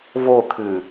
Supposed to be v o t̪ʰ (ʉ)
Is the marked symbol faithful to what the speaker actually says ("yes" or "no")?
yes